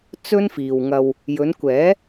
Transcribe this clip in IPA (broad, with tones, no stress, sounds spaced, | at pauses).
t͡s ɵ˥ n f iː˨ w ŋ ɐ˧ w | j ɵ˨˧ n kʷ ɛː˨˥